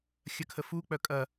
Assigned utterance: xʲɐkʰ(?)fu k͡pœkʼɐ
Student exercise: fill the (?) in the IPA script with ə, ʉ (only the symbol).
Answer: ə